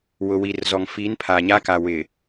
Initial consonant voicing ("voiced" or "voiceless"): voiced